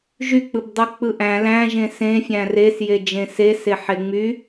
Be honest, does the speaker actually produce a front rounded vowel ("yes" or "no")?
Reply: yes